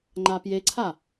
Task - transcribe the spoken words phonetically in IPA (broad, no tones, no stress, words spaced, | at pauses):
ŋ͡ǃapjeǀʰa